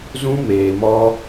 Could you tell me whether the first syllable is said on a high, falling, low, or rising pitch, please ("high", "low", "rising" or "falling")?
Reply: high